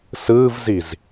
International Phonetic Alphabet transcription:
s ɯː v z i z

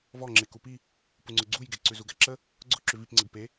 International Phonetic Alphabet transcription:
v ɔ ŋ͡ǁ e k u p i | p u ŋ͡ǀ ʊ ɡ͡ǀ u j ɡ e ǀ ʉ z u ɡ æ ǁ ə | ɡ͡ǀ ʊ ǁ ʉ v i p ŋ͡ǀ ə ɡ p e

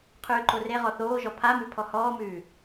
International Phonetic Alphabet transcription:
qʰ ʉː ǃ o r e ʁ ɔ θ oː ʒ ɔ pʰ a m ʉ pʰ ɔ h ɔː m ʉː

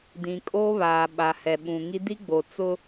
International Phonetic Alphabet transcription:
d ĩ˨ kʼ oː˦ β aː˨ ɓ a˨ h ɛ˨ ɓ ũ˨ ŋ i˦ d i˦ ɡ͡b o˨ t͡s ʊ˦

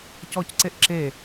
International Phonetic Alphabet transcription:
c ɔ c ǀ e ʔ ǁ e

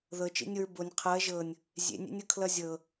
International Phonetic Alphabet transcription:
ð ɤ t͡ʃ ḛ nʲ o ɹ b o nʲ qʰ ɤ ɐ̯ ʒ ɤ nʲ | zʲ ḛ nʲ ḛ nʲ ɤ kʰ l ʌ zʲ ɤ

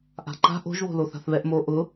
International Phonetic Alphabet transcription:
ʔ a̤ ǃ a̤ ʔ o̤ ʒ β o̤ l o θ a̤ θ β ɛ ʔ m o ʔ ʊ

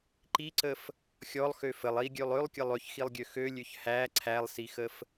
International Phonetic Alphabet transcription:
ǃ i ǀ ə f | xʲ ɔ lˠ x ø f ə lˠ i ɡʲ ø lˠ ø lˠ kʲ ə lˠ ø ç x i lˠ ɡʲ ø x ø lʲ ø ç h æ ǀʰ æ lˠ s i x ə f

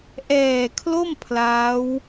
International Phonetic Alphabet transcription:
ʔ ɛː˨˩ kʰ l o˥˩ m pʰ l aː˦˥ w

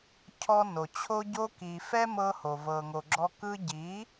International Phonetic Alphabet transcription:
cʰ ɔ˧ n o˨ t͡ɕʰ o˧ ɟ o˧ k i˨ f ɛ˦ m ɤ˧ h o˨ v ɤ˨ ŋ o˨ ɡ͡ǁ ɔ˧ k ɯ˧ ɟ i˨˦

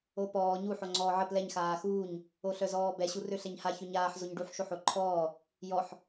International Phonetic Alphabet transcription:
o p ɔː ɲ u ħ o ŋ͡ǀ ɔː ʕ ə p l ɛ ɲ x aː x uː ɲ | o ɬ œ z ɔː b ɛ ɕ u r ø ɬ ɛ ɲ h a ç ø ɲ aː ħ z o ɲ ɖ u ħ ʃ o ħ o ǃʰ ɔː | j ɔ ħ

